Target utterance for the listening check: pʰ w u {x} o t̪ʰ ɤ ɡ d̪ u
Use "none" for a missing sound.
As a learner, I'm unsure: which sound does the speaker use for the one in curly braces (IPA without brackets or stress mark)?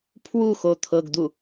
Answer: x